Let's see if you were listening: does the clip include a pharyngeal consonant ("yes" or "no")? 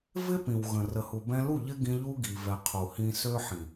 yes